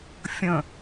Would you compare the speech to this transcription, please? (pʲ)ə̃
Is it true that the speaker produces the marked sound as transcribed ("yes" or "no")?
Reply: no